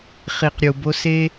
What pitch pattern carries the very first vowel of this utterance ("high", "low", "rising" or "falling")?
low